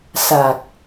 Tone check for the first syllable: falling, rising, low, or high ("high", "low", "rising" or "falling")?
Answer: low